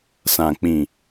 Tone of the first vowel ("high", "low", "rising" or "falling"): low